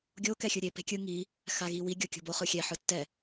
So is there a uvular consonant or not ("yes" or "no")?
yes